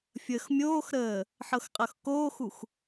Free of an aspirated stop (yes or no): yes